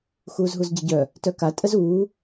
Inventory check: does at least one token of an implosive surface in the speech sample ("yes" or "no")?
no